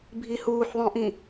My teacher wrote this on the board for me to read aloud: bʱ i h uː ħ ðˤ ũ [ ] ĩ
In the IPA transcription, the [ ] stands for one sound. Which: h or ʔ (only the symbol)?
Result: ʔ